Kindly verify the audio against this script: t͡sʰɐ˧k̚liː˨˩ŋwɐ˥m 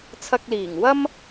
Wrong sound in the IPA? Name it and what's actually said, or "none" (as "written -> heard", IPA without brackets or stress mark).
none